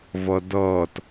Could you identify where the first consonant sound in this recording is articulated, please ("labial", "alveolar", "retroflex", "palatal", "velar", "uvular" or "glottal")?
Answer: labial